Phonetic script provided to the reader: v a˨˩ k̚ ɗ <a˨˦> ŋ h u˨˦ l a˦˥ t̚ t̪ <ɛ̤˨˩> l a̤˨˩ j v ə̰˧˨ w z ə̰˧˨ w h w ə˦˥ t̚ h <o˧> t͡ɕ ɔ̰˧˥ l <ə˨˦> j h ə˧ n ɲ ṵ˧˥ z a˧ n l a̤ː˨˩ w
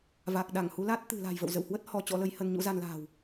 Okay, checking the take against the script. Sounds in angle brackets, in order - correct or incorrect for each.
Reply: incorrect: a˧˩, incorrect: ɨ̤˨˩, incorrect: ɔ˧, correct

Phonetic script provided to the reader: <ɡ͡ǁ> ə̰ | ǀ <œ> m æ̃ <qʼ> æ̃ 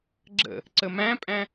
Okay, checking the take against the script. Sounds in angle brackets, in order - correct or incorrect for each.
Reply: correct, incorrect: ə, incorrect: pʼ

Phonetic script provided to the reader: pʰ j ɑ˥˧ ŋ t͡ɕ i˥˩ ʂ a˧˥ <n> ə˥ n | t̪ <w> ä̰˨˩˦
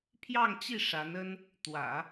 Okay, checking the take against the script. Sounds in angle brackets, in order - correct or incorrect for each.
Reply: correct, correct

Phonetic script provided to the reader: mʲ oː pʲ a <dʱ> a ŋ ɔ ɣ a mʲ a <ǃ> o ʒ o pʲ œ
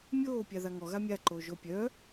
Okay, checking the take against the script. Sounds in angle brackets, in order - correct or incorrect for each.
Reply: incorrect: ð, correct

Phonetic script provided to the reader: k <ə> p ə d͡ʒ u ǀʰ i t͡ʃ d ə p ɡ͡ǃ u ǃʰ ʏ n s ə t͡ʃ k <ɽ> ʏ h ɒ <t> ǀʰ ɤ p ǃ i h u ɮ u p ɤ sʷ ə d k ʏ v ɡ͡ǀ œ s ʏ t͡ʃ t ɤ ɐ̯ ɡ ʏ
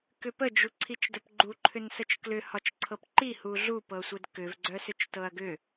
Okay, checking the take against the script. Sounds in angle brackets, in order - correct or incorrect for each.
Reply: incorrect: ʏ, incorrect: l, incorrect: t͡ʃ

